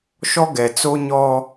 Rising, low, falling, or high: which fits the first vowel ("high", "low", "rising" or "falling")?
high